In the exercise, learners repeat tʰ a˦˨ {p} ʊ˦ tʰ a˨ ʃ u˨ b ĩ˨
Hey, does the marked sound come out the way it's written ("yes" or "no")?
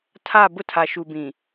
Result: no